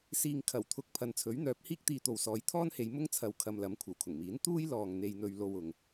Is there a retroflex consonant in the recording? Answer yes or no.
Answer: no